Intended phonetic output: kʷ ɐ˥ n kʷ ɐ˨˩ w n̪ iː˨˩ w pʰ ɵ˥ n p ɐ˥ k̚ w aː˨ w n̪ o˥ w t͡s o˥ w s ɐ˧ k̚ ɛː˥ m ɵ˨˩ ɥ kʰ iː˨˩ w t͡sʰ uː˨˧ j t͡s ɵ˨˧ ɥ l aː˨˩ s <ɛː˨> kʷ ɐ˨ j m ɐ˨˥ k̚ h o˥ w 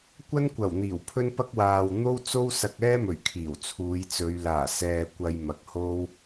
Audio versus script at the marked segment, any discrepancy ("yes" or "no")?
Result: no